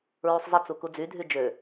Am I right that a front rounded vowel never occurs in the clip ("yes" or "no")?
no